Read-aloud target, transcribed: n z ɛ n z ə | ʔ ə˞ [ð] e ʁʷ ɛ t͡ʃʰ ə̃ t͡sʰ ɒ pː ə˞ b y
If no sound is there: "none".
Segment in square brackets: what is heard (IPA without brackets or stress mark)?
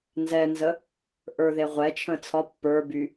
ð